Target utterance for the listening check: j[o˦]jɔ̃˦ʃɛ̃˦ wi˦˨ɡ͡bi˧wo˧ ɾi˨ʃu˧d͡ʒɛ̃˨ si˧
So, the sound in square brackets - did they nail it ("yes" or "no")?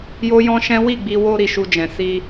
yes